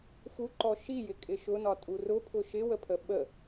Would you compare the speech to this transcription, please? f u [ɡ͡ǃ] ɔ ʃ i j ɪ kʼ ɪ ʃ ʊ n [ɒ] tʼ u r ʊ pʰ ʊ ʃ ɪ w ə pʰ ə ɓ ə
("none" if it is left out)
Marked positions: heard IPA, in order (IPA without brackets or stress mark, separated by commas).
ǃ, ɒ